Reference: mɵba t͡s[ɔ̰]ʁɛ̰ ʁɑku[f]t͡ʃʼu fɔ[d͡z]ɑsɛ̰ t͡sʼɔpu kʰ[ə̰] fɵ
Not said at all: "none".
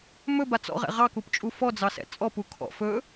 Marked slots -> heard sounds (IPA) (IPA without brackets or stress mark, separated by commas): ɔ̰, p, d͡z, ɔ̰